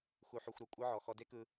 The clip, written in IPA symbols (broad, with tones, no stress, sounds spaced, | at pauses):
x u˧ ħ u˧ xʷ ɾ o˩ kʷʼ ɯ˥ ʕ ɔ˧ x ɔ˧ d e˥ k ɯ˧